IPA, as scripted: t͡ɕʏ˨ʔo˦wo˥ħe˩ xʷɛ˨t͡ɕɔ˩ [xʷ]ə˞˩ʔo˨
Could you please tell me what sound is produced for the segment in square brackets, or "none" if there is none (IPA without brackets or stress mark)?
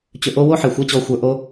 xʷ